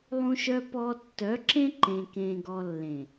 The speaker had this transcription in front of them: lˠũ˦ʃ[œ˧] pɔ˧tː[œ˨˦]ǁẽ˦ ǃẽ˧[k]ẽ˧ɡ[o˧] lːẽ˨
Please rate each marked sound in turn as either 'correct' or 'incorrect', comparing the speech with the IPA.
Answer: incorrect, correct, correct, incorrect

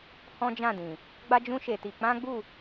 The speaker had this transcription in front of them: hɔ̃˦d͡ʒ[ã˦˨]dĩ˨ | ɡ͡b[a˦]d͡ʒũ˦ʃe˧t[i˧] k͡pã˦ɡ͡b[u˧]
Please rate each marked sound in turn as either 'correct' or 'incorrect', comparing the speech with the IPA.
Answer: correct, correct, correct, incorrect

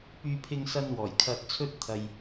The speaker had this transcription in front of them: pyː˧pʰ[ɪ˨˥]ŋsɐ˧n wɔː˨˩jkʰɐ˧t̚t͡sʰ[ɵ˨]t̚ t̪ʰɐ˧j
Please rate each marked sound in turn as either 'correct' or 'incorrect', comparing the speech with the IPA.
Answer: incorrect, incorrect

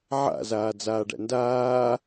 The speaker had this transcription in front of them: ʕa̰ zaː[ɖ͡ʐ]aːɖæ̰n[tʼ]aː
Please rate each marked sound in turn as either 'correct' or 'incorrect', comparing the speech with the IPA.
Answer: incorrect, incorrect

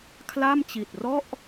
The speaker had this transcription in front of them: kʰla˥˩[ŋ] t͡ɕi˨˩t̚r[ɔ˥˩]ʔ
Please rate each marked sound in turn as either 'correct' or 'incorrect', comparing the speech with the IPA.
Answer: incorrect, correct

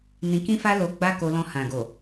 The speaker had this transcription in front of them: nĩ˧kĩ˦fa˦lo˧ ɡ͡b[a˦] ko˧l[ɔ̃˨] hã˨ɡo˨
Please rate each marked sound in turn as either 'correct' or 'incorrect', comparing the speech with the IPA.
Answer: correct, incorrect

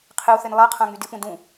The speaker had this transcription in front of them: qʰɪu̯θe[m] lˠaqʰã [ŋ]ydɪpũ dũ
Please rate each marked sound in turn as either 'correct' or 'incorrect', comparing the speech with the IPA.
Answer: incorrect, correct

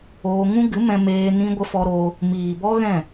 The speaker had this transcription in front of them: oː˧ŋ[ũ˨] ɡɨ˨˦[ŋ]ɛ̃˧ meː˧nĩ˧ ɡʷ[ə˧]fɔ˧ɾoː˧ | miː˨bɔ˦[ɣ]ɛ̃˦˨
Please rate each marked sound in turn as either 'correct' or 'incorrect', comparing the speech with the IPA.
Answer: incorrect, incorrect, correct, correct

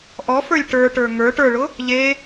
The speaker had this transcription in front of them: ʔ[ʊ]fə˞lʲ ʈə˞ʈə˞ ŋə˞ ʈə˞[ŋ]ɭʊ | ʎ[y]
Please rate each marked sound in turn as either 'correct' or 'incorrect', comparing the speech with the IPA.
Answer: incorrect, incorrect, incorrect

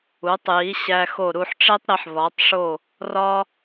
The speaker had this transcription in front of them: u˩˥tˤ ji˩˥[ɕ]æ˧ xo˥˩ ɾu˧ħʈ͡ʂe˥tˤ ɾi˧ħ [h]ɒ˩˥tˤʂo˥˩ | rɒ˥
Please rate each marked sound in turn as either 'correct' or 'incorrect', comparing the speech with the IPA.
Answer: correct, incorrect

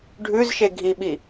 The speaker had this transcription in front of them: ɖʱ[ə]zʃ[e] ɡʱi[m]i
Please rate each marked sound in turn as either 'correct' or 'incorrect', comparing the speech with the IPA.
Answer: incorrect, correct, incorrect

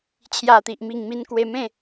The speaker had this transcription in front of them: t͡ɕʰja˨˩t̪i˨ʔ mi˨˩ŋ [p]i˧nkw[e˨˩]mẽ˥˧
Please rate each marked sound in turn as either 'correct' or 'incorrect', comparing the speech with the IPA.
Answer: incorrect, incorrect

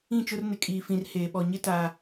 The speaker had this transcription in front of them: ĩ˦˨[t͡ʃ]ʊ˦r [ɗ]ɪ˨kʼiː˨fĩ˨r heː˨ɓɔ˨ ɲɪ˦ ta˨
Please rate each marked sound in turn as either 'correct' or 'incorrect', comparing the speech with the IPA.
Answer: correct, incorrect

